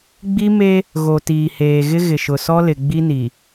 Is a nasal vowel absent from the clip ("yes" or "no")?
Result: yes